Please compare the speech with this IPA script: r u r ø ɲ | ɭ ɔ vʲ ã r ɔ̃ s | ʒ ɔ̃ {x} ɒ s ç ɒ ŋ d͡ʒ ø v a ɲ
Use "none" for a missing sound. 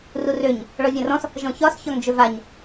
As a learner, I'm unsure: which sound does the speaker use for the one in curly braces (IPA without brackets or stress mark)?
ç